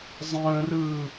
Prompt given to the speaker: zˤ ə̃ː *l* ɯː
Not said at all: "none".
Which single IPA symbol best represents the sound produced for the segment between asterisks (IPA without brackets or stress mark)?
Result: r